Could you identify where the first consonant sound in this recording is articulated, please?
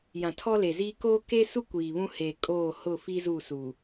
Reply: palatal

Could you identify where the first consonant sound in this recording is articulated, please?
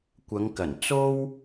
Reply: velar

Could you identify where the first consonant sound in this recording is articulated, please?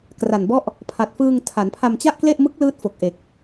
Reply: velar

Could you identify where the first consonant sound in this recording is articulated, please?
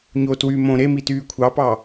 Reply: palatal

